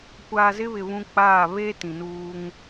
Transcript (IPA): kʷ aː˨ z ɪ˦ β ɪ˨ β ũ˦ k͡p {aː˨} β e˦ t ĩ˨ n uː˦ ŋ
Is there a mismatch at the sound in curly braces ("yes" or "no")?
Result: yes